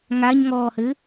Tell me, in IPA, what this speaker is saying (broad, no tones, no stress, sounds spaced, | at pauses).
ŋ a ɲ ŋ ɔː h ɘ